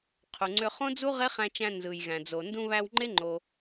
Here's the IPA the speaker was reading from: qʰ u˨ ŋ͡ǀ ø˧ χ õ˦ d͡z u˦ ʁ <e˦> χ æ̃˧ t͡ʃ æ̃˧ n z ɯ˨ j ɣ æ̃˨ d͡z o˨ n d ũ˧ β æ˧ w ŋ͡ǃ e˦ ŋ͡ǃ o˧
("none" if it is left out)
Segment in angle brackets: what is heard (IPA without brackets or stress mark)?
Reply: e˦